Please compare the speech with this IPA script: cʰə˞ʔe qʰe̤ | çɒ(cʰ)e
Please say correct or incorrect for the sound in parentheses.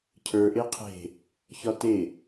incorrect